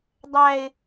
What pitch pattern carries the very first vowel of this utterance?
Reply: high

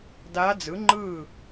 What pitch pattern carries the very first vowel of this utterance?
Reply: rising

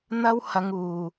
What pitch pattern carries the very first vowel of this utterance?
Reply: high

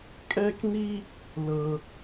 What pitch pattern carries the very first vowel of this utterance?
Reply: high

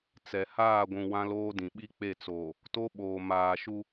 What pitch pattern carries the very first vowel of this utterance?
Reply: low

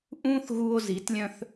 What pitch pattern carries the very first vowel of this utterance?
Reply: high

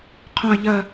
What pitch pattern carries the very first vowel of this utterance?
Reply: low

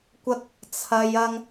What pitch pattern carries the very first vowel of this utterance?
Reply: high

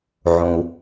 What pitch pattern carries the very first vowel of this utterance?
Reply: low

